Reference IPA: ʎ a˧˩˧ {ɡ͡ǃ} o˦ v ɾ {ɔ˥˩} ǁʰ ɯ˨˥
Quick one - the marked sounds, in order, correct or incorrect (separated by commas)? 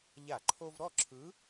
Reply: incorrect, correct